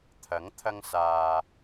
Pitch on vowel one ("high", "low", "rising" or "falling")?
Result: rising